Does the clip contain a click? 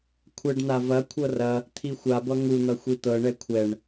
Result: no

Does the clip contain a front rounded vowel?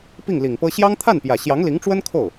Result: no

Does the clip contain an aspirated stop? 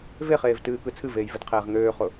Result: yes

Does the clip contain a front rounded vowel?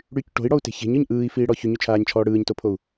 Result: yes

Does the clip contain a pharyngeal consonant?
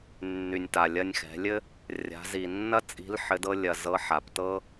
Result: yes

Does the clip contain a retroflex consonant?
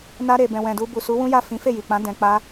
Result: no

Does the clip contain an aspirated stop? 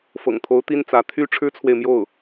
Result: yes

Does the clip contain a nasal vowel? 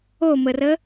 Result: no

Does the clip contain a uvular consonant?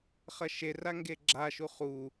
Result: yes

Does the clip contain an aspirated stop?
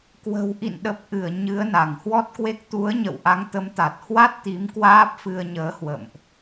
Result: no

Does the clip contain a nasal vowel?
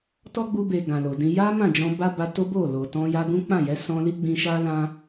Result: yes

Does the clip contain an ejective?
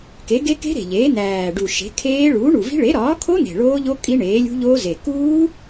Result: yes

